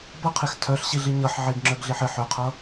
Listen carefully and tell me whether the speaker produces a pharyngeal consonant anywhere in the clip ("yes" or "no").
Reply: yes